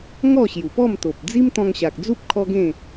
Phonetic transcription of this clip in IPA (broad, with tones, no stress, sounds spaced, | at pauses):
ŋ ɔ˥˧ ɕ j u˨˩ p ɔ˥˧ m t̪ o˨ p̚ d͡z i˦ m t̪ ɔ̃˧ ŋ ɕ a˨ k̚ d͡z u˦ p̚ kʰ ɔ˦ ɡ ẽ˥˧